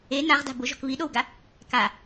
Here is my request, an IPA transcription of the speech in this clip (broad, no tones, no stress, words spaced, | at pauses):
e naʁda̤ bʊʒ ɔ̤kβiɗowɡa | ka